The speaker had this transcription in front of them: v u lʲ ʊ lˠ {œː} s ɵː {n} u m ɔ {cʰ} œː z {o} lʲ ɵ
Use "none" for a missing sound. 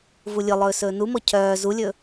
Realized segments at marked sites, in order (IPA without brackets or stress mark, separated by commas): ɵː, n, cʰ, u